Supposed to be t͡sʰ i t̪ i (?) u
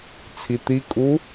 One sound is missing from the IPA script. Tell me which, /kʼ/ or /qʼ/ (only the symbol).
kʼ